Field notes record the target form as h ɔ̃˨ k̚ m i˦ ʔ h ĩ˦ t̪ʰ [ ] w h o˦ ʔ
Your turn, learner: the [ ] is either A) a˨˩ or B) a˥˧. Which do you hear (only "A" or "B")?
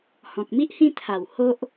A